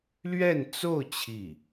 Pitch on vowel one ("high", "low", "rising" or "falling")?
falling